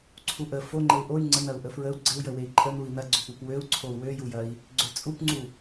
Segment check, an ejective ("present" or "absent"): present